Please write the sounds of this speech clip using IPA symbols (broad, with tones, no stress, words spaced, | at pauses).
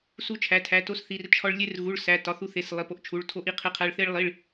su˧t͡ʃʰæ˩˧˩tʰæ˩˧˩ to˧sθi˩˧˩rt͡ʃʰɒ˧ɭ lʲe˧rɣu˩˧˩ɭ sæ˩˧˩tɒ˩˧˩θu˧θe˩˧˩s lˠi˩˧˩ po˧ʔt͡ʃʰu˩˧˩ɭ tʰo˧ʔi˧qʰe˧qʰæ˧ɭ θe˧ɭlˠi˩˧˩ɭ